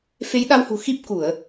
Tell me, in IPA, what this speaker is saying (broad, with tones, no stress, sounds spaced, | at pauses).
f e˨˦ j ɗ a˧ w h ṳ˨˩ x i˦˥ p̚ k u˧˩˨ ə̯